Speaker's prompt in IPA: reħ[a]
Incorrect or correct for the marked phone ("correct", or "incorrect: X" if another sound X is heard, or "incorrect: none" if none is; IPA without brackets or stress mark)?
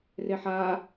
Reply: correct